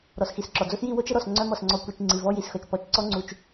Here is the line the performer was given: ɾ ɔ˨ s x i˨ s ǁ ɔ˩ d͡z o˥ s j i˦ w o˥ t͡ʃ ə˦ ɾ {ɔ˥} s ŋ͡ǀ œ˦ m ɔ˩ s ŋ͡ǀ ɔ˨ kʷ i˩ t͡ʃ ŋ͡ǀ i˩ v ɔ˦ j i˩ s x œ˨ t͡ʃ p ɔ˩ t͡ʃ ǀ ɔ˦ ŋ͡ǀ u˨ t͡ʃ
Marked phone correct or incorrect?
incorrect